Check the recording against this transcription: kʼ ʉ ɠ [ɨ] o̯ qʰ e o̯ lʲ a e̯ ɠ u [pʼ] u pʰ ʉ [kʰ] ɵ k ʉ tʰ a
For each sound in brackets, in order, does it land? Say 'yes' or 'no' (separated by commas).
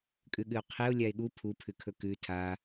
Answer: yes, no, yes